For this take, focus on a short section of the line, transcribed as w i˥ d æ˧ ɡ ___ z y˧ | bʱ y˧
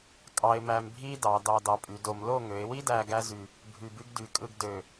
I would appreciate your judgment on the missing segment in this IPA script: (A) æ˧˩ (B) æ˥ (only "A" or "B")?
B